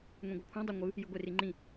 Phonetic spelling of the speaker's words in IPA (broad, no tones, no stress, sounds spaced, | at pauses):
ŋʷ ĩ ɡʷ ɤ kʷʰ ã dˤ ɤ ŋʷ ɯ | j ɯ ɡʷ e r i ŋ͡ǃ ĩ